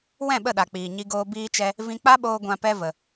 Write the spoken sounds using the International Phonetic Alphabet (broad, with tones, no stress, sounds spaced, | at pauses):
w ɛ̃˦˨ ɓ ə˦˨ ɗ a˨ k͡p iː˨ ɲ i˧ ɡ oː˧ b iː˦ t͡ʃ ɛ˦ | v ĩ˧ k͡p a˦ ɓ oː˧ ɡʷ ã˧ p ɛ˦ v ə˧